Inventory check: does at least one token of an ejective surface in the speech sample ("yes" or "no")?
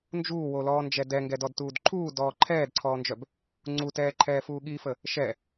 no